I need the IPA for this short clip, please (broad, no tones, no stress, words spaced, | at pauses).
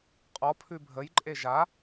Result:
qʼɔ pʰʉbʱəjǃʼe ʒa